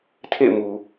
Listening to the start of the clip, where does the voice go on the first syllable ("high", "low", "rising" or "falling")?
falling